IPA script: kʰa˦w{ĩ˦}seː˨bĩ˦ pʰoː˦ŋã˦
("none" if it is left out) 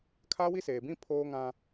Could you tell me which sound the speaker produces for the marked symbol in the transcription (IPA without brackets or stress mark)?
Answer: i˦